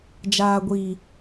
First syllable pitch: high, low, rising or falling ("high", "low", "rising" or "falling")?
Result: low